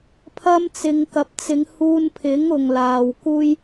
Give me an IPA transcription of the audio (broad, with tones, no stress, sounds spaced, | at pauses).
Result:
pʰ ɐ˧ m t͡s ɪ˨ ŋ k ɐ˨ p̚ t͡s ɪ˨˧ ŋ h uː˧ n pʰ ɪ˨˥ ŋ ʊ˨ ŋ l aː˨ w k uː˥ j